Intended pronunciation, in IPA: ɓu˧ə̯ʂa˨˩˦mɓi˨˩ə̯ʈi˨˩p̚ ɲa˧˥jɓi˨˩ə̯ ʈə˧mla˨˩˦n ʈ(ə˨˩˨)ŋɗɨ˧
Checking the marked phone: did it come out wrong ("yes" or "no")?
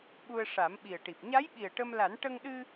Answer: yes